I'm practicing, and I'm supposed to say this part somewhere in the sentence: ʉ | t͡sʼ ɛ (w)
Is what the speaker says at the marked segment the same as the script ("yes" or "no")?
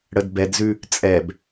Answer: no